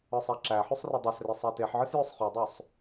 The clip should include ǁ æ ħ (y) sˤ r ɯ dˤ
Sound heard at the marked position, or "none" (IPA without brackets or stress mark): y